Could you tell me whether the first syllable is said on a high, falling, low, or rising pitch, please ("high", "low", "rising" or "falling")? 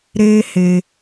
high